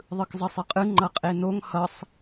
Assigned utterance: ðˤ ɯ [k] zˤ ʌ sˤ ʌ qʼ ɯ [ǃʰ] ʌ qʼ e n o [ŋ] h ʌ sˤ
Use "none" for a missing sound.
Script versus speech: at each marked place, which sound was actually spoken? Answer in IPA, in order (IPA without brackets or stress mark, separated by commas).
k, ŋ͡ǃ, ŋ